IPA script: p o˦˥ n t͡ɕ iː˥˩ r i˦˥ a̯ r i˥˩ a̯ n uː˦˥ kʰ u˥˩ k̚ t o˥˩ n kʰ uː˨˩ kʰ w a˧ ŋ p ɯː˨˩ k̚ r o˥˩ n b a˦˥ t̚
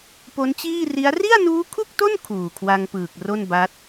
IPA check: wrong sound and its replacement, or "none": none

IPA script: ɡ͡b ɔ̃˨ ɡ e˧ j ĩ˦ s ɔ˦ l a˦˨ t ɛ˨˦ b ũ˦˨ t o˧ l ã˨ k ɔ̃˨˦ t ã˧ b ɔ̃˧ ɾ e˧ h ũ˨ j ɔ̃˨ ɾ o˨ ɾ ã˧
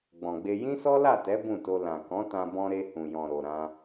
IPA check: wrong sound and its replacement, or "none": ɡ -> ɡ͡b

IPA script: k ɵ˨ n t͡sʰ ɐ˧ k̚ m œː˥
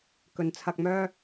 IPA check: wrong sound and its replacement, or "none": none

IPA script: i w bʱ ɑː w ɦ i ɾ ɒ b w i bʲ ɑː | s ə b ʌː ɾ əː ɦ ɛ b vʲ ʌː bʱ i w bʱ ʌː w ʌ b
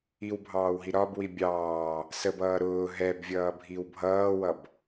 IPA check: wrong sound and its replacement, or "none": əː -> ʊː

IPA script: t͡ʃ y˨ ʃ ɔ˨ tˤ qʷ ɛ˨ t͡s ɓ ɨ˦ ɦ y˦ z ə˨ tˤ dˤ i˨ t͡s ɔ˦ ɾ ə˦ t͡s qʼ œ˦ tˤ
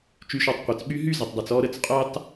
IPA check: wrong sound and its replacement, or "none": ɨ˦ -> y˦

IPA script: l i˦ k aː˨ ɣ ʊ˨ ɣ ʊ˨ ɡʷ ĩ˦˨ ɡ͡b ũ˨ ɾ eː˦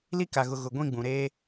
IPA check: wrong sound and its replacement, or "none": aː˨ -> a˨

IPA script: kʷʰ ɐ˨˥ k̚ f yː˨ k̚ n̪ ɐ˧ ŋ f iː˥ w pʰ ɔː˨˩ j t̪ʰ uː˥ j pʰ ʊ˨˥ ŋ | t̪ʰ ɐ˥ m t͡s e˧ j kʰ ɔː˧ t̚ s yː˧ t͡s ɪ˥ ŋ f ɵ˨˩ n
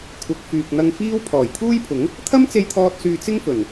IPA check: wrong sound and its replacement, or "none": kʰ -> t̪ʰ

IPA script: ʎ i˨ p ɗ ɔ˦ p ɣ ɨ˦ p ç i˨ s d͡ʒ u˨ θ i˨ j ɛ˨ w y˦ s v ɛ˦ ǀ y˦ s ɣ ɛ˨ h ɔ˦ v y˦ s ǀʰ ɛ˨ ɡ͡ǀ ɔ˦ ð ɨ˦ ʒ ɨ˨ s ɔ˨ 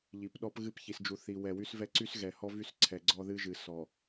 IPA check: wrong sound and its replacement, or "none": j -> w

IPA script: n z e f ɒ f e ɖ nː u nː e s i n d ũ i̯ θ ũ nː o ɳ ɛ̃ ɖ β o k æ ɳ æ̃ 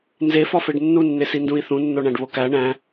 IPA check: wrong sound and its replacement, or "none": ɛ̃ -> æ̃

